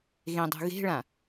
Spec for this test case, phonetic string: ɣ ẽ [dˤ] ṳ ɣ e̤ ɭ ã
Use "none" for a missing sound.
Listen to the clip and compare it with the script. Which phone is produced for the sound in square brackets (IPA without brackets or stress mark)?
dˤ